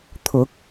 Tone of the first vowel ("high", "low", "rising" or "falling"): rising